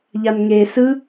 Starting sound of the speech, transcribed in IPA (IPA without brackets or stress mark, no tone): ʎ